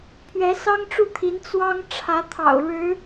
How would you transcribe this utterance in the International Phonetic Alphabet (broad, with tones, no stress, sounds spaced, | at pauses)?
pʰ ɥ ɛ˧˥ s ɑ˥ ŋ ʈ͡ʂ u˥˩ t̪ʰ i˧˥ n t͡s w ɑ˥ ŋ ʈ͡ʂʰ ä˧˥ t̪ʰ ɑ̰˨˩ ʊ̯ ɻ ɻ̩˧˥